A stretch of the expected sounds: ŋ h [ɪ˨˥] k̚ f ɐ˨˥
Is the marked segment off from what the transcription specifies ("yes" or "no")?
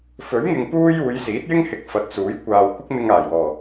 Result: no